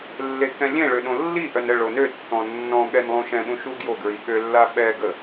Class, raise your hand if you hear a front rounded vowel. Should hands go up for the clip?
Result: yes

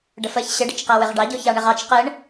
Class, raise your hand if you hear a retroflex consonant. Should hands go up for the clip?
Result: yes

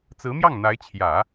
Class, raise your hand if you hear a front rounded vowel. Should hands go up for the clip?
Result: no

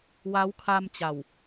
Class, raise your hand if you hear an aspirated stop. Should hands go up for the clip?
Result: yes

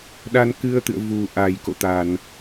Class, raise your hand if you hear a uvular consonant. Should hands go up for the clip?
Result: no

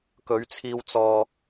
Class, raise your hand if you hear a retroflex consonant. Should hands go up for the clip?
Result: no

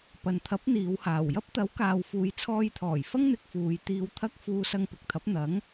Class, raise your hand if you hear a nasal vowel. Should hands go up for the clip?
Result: no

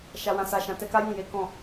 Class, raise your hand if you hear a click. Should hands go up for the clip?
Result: no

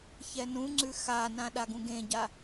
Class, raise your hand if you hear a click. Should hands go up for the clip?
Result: yes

